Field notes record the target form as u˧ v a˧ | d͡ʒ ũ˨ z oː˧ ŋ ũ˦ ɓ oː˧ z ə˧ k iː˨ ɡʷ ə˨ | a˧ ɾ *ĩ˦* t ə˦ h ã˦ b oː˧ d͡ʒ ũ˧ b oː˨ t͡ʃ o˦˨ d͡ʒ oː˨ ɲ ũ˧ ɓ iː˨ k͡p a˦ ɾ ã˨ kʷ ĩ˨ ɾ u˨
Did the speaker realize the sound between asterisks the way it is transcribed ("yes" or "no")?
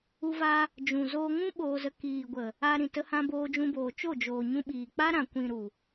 no